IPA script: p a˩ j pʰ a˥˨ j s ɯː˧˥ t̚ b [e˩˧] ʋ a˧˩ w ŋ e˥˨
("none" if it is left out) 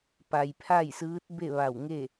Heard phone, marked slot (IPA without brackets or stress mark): e˥˨